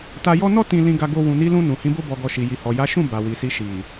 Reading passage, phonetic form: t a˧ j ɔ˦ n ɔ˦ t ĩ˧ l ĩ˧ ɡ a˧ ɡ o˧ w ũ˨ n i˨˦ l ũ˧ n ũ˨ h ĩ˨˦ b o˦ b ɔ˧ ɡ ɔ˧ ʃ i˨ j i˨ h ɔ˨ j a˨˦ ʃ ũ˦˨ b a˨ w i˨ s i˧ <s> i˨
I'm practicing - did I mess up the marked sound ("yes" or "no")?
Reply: yes